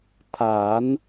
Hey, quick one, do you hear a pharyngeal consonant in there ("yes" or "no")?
no